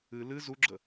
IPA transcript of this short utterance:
ɨ l ɨ z u ɡ͡ǁ ə

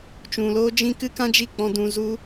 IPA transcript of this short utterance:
t͡ʃ ũ˨ l oː˦ d͡ʒ ĩ˦ k ɨ˦ k ã˦ d͡ʒ i˦˨ k͡p ɔ̃˧ d ũ˧ z u˦

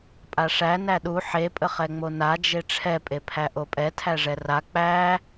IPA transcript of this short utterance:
pʼ a ʂ æ n æ ɗ u ħ e pʼ ə χ ɛ ŋ͡m o n a d͡ʒ e ʈ͡ʂʰ ɛ pʼ e pʰ æ ʔ o pʼ ɛ tʰ æ ʐ ɛ r a k͡p æ

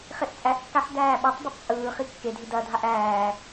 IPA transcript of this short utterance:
χ e ʔ t͡sʼ æ ʔ kː a ħ d æː ɓ æ tˤ b e tˤ t͡sʼ ɯː χ i kː e dʱ i d ɐ dʱ a ʔ æː

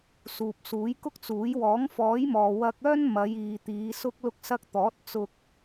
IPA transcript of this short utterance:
s uː˨ p̚ s uː˨˥ j k ʊ˥ k̚ t͡s uː˨˥ j w ɔː˨˥ ŋ f ɔː˨˥ j m ɔː˨ w ɐ˧ k̚ œː˥ n m ɐ˨˧ j iː˨ t̪ iː˨˧ s ʊ˧ k̚ l ʊ˧ k̚ s ɐ˧ k̚ t̪ ɔː˨˥ t̚ t͡s ʊ˧ k̚

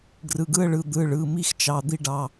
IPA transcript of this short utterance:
ɡ r ɯ˩˧˩ ɡ ɯ˥˧ ə̯ ɭ ɯ˩˧˩ d̪ ɯ˩˧˩ ɭ ɯ˩˧˩ m i˥˧ x t͡ʃ ɑ˩˧˩ d̪ i˥˧ ɖ ɑ˩˧˩

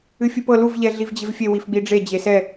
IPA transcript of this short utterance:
ɨ fʲ ɨ p ɤ l u v ʎ ɛ ɮ i v d͡ʑ e v fʲ e w i f ɡ͡b i ɖ͡ʐ e d͡ʑ e s ɛ

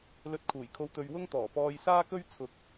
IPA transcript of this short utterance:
l ɵ˧ t̚ kʰ uː˨˩ j kʰ o˧ w t̪ ɵ˧ ɥ w ʊ˥ ŋ t̪ ɔː˨˩ p ɔː˧ j s aː˥ k ɵ˥ ɥ t͡sʰ ʊ˧ k̚

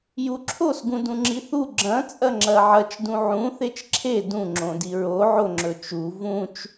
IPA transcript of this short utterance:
j u ǁʰ o s ɡ ũ d ũ ŋ͡ǁ i θ u ɡ͡ǁ ɐ̃ t͡sʼ ɐ ŋ͡ǁ ɐ ʕ ɐ t͡ʃ d ũ ʕ ũ θ e t͡ʃ ǁʰ e d ũ ŋ͡ǁ õ d i ɹ o ʕ o ŋ͡ǁ ɵ t͡ʃ u v ũ t͡ʃ

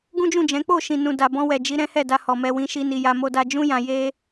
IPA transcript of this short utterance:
ɡ ũ˦ d͡ʒ ũ˦˨ d͡ʒ ɛ̃˨˦ k͡p o˦˨ ʃ ĩ˨ n ũ˨ d a˨ b ɔ̃˧ w ɛ˨ d͡ʒ i˨˦ ɾ ɛ̃˦ h ɛ˦˨ d a˧ h ɔ˨ m ɛ˧ w ĩ˧ ʃ i˦ n i˧ j a˦ m o˧ d a˧ d͡ʒ ũ˦ j ã˧ j e˦

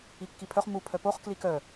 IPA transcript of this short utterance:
i kː i pʰ œ χ m u pʰ œ p o χ k l i k œ

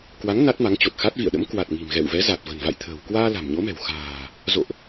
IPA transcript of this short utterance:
k w a˨˦ ŋ n a˦˥ t̚ m a˨˦ ŋ t͡ɕ o˨˩ t̚ x a˦˥ t̚ v ḭ˧˨ ə̯ ɗ ə̰˧˥ m k w a˨˩ t̚ ŋ i̤˨˩ m ɣ ɛ̰˧˨ w v ɛ˨˦ z a˨˩ t̚ v ə̤˨˩ n v a̰˧˨ j t̪ʰ ə̤ː˨˩ w k w aː˧ l a̤˨˩ m ɲ o˨˦ m ɛ̤˨˩ w x a̤ː˨˩ | z o̰˧˨ ʔ

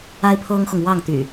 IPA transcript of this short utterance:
a˦ ɪ̯ pʰ ɤ˦ ŋ x ʊ˨ ŋ w ɑ˥˨ ŋ t̪ y̰˨˩

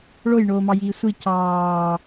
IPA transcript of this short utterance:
ɭ o j ɳ oː m ɑ j iː sʷ i c ɑː

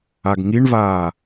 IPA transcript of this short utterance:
a ɡ ŋ i ɳ v aː

